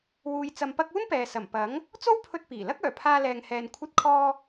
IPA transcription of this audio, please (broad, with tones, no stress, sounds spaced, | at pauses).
w uː˧ j t͡s ɐ˧ m p ɐ˥ k̚ uː˥ n p ɛː˨ s ɐ˨˩ m p ɐ˨˥ ŋ | t͡s o˥ w pʰ ɵ˧ t̚ p iː˨˩ l ɐ˥ k̚ œː˨˩ pʰ aː˧ l ɛː˨ ŋ h ɛː˨ n kʷʰ ɐ˧ t̚ kʰ ɔː˧